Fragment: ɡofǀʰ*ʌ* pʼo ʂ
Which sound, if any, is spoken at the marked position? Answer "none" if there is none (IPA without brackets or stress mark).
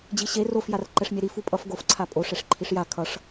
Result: a